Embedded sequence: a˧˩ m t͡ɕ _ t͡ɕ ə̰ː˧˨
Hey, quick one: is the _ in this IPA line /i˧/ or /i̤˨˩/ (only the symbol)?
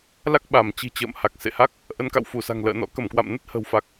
i̤˨˩